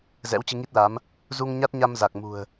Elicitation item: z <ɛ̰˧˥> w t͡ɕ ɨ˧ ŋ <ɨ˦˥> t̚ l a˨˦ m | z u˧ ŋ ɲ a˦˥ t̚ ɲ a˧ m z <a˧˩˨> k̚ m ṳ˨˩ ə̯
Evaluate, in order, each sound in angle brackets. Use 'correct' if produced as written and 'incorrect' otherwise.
correct, incorrect, incorrect

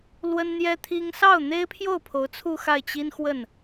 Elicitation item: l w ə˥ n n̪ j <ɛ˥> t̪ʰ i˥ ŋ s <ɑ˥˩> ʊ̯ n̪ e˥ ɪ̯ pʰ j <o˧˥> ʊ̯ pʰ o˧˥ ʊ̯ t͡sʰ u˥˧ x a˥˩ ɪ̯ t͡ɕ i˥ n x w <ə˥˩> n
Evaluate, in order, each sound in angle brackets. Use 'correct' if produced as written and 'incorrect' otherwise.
correct, correct, incorrect, correct

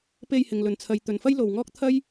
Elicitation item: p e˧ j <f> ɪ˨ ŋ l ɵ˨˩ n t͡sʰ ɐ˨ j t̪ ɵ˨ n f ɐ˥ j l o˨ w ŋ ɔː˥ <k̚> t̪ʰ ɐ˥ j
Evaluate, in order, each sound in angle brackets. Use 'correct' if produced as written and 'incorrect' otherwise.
incorrect, correct

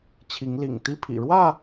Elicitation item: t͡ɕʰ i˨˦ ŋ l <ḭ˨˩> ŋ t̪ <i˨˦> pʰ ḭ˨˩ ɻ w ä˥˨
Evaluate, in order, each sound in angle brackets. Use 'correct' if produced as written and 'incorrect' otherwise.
correct, incorrect

